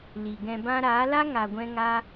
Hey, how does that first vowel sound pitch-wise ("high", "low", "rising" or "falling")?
low